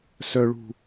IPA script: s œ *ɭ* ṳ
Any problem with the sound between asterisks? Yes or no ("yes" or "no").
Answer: no